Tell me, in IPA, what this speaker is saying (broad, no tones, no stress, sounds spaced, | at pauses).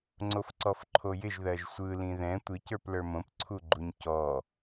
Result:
ŋ͡ǀ o f ǀ ɔ f ǃʰ o j ɪ ʒ ð ɜ ʒ sʷ ɯ l ĩ ð ɛ̃ tʷ ɪ c ə˞ p l ə˞ m õ p ǀʰ u ɡ͡ǃ u ɲ c ɔ